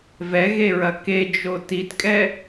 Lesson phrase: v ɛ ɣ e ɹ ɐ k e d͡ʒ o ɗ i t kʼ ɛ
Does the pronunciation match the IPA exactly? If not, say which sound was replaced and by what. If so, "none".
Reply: ɗ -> t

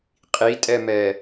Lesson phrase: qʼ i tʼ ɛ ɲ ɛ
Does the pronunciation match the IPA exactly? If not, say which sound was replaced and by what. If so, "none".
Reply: ɲ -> m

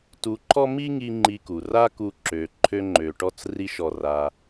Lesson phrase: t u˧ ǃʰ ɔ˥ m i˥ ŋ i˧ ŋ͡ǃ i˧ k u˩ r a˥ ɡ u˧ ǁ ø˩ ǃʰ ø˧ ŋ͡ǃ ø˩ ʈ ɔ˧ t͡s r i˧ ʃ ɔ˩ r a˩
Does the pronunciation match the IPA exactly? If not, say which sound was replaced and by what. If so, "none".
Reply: ɡ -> k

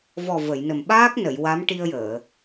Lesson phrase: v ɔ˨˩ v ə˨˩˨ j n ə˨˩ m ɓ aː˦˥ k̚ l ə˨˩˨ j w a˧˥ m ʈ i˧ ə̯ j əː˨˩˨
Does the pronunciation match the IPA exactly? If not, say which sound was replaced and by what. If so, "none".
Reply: l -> n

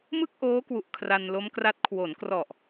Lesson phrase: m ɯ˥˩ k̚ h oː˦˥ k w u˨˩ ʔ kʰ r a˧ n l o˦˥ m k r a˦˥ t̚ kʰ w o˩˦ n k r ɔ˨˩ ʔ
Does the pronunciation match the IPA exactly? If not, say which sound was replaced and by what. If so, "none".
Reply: h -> ʔ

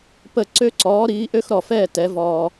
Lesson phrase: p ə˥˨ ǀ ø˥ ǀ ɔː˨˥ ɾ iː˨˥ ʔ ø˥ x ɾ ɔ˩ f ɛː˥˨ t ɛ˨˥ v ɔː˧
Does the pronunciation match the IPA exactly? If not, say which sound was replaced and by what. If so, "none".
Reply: none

